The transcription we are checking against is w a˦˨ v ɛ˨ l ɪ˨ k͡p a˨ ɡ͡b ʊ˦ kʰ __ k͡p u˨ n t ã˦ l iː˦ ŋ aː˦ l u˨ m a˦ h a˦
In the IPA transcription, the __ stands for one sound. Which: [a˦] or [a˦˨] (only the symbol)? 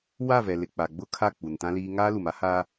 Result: a˦˨